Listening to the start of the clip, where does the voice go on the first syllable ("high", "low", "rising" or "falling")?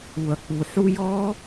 low